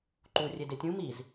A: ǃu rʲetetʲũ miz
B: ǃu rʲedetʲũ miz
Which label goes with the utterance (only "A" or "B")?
B